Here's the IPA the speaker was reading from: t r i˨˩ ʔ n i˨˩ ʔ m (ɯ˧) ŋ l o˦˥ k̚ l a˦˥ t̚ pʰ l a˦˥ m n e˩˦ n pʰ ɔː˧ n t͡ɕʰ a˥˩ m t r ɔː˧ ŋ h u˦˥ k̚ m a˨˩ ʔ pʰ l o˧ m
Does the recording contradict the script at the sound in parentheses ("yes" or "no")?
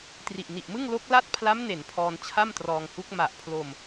yes